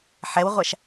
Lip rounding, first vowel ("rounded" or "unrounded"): unrounded